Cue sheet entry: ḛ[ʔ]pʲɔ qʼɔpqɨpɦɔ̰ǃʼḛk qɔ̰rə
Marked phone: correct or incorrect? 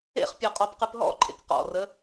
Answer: incorrect